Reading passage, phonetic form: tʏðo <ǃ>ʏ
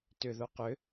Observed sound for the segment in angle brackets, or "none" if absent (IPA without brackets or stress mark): q